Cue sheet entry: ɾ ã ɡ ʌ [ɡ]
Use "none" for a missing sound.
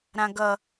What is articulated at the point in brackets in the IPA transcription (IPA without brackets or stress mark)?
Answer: none